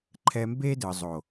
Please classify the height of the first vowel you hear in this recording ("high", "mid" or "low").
mid